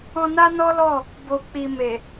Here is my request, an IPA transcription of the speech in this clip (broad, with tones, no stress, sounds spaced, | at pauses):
ɔ̃˧ n a˦ n ɔ˦ l ɔ˦˨ | b o˨ k͡p i˨ m e˨